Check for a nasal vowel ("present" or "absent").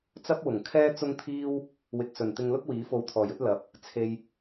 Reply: absent